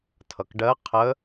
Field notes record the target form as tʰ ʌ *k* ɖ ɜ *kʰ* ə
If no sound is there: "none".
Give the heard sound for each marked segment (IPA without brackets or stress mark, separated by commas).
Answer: k, qʰ